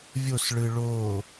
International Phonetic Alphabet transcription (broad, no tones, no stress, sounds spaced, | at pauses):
vʲ o s ɭ ɯ ɭ oː